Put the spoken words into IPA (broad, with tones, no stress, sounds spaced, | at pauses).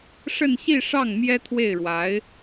ʂ ə˥˧ n ɕ i˥˧ ʂ ɑ˥˩ ŋ m j ɛ˥ t̪ʰ w e˥˩ ɪ̯ ɻ w a˧˥ ɪ̯